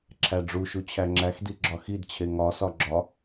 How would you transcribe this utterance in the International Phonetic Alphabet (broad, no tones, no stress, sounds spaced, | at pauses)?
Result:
ǁʰ æ ɖ͡ʐ u ʃ u t͡ɕʰ æ ŋ͡ǁ æ x d i ɡ͡ǁ ɒ x i d t͡ɕʰ e ŋ ɒ s ɒ ɡ͡ǁ ɒ